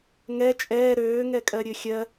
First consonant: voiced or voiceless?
voiced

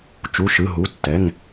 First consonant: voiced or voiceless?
voiceless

